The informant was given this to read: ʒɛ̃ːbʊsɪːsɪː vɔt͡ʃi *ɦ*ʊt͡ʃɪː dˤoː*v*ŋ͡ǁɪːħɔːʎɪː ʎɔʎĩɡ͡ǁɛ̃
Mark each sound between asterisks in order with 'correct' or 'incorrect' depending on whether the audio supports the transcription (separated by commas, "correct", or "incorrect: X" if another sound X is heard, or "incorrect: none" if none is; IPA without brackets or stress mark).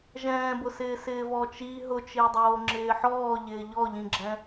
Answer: correct, incorrect: none